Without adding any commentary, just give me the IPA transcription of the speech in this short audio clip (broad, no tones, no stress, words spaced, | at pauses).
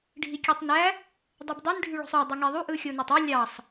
ɖʱikʲøtˤnæ | dˤubdˤin ɖʱyɭo̤sˤø dˤɯŋeðˤu ʔɯxʲonætˤø lʲɑsˤ